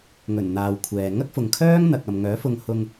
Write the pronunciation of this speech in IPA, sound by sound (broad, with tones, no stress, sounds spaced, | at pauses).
ŋ ɵ˨˩ n n̪ aː˨ w kʷʰ ɛː˨ ŋ ɐ˥ k̚ f ʊ˨ ŋ kʰ œː˥ ŋ n̪ ɐ˨ k̚ ɐ˨ m ŋ œː˨˥ f ʊ˧ ŋ h ʊ˧ ŋ